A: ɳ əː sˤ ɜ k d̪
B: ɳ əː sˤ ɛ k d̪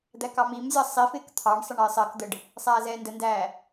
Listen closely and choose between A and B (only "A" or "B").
A